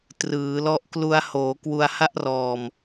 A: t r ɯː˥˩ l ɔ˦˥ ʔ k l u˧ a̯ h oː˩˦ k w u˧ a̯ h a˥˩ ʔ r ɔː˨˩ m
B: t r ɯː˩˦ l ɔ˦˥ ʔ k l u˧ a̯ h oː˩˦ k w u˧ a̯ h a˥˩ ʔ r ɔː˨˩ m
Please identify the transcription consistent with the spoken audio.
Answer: B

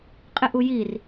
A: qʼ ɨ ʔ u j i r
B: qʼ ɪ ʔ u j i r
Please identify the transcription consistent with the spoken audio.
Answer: B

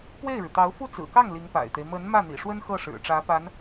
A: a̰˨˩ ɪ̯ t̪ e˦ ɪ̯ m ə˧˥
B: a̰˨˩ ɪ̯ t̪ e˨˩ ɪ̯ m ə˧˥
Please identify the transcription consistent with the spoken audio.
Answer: A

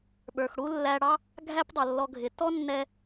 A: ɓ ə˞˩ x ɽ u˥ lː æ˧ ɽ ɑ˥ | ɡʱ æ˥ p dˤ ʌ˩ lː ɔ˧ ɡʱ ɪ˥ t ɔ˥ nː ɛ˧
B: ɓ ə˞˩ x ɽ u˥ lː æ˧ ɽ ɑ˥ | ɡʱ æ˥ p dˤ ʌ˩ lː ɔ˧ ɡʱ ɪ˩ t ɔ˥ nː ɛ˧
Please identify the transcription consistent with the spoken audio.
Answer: B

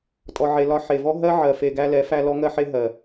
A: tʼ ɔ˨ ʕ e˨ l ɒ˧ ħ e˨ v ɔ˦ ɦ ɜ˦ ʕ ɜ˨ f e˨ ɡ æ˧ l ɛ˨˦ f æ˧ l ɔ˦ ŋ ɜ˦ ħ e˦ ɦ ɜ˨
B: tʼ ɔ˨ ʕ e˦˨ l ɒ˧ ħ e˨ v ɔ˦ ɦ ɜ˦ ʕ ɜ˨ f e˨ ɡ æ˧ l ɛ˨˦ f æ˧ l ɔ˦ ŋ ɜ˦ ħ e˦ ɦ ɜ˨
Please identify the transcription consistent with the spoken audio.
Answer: A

